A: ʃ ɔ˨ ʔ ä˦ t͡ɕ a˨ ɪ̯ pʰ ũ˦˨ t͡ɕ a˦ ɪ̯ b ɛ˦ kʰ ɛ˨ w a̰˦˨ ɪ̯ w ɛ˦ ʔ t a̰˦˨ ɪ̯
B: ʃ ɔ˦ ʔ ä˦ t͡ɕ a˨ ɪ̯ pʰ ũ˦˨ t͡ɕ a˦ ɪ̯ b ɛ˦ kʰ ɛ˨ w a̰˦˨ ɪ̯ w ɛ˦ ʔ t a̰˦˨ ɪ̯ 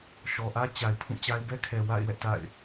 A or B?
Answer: A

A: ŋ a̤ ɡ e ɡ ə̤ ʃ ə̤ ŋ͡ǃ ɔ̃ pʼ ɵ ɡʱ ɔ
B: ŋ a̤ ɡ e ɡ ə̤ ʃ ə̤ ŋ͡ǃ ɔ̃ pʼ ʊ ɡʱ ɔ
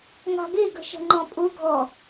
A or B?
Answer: B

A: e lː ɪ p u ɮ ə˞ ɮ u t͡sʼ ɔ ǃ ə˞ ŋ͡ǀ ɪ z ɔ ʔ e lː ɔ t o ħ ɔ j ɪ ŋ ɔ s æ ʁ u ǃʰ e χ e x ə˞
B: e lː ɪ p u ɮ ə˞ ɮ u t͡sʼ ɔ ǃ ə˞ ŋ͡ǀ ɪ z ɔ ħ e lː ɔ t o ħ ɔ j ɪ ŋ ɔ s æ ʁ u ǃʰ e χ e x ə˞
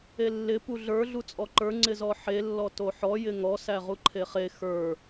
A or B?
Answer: B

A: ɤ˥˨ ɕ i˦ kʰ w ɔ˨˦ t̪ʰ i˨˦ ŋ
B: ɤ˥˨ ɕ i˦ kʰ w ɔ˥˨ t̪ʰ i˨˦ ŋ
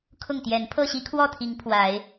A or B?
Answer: B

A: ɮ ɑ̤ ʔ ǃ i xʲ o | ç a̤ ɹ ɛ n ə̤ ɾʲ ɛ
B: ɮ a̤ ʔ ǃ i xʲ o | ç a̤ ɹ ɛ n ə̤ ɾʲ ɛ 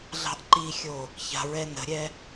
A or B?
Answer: A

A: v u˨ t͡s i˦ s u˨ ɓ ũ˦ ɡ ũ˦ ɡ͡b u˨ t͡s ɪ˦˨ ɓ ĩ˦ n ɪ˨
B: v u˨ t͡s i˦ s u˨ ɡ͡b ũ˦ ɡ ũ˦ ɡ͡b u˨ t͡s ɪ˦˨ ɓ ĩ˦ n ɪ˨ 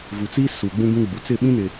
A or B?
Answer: B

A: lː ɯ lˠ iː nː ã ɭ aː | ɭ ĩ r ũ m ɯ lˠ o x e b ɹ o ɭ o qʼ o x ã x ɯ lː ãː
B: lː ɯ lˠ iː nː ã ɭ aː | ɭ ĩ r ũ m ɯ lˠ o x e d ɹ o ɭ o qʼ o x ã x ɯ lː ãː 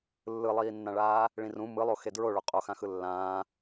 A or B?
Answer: B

